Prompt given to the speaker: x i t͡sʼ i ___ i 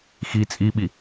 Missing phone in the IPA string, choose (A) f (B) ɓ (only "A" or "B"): B